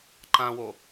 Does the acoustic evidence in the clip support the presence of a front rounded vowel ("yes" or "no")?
no